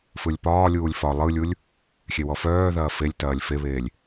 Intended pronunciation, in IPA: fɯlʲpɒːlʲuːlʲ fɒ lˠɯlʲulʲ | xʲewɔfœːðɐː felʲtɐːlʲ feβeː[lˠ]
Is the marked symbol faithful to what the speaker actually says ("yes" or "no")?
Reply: no